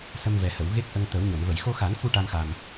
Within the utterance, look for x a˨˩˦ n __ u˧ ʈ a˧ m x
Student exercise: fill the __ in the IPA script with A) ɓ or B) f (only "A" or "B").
B